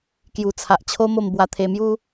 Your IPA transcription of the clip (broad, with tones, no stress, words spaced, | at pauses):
kju˨˩t͡sʰa˨ʔt͡ɕʰo˦ mo˥˧m bwa˧t̪ʰe˧mju˦